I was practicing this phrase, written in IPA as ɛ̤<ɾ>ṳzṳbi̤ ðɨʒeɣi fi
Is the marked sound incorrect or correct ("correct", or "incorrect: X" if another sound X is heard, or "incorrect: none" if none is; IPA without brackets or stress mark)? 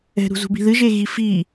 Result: correct